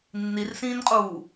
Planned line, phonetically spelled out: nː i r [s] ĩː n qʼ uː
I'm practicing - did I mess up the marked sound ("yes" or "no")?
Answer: no